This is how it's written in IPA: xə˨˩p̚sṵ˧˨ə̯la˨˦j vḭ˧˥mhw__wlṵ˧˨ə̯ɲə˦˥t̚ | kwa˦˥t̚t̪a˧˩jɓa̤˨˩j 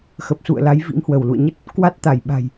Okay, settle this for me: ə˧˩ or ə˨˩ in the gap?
ə˧˩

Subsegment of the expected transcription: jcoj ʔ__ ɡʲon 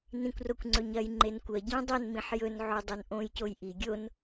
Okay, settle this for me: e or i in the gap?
i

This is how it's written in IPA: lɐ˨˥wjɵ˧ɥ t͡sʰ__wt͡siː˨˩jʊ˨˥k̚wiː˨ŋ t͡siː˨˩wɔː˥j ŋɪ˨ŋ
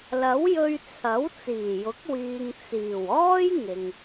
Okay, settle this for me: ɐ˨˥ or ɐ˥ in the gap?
ɐ˨˥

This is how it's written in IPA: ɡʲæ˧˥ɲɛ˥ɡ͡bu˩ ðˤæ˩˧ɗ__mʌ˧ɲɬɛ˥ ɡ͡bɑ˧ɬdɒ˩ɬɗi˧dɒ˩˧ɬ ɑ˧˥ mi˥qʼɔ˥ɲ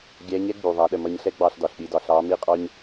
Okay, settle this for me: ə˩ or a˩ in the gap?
ə˩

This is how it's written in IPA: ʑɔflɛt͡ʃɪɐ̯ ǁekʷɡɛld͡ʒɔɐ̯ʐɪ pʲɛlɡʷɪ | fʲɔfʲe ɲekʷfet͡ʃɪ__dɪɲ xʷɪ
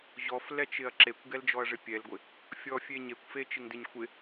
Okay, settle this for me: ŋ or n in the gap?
ŋ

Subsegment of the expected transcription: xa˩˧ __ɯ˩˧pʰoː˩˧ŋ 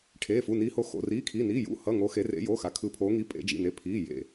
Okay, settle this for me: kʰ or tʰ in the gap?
kʰ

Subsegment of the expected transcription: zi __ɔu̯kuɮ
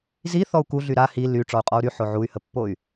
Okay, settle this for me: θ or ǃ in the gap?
θ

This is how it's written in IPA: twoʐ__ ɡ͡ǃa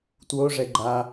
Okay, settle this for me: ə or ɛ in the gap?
ɛ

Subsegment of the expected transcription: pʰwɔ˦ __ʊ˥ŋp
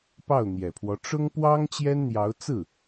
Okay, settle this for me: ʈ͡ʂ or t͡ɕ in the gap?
ʈ͡ʂ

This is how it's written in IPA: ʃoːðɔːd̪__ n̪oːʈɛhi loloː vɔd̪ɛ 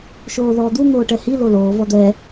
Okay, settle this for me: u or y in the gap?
u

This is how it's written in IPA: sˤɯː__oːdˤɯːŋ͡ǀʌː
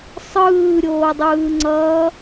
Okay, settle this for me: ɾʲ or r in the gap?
ɾʲ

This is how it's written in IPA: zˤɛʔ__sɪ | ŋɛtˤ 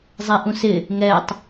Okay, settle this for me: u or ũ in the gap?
ũ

